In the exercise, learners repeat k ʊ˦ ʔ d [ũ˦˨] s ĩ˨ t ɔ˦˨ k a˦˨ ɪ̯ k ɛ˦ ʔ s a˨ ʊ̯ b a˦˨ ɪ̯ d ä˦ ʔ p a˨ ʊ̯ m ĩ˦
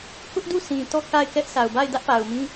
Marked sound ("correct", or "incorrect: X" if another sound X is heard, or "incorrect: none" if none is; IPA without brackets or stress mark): incorrect: u˦˨